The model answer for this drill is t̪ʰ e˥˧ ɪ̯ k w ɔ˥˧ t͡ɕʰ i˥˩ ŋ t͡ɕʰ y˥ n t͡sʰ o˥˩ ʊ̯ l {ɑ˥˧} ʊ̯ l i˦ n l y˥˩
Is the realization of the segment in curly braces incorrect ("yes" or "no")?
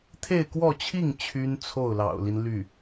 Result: yes